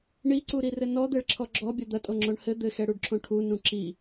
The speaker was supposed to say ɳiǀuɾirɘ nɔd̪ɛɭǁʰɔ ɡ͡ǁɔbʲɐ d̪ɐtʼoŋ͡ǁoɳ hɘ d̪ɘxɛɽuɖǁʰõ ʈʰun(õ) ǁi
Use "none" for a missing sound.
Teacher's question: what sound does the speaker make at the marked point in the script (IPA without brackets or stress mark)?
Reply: ũ